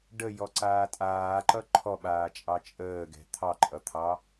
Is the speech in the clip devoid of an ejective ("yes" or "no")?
no